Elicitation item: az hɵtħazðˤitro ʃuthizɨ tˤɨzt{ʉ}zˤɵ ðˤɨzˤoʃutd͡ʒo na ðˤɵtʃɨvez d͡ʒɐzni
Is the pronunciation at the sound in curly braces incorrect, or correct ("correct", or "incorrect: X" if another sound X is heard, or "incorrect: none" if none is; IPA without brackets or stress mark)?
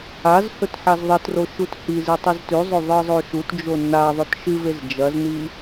correct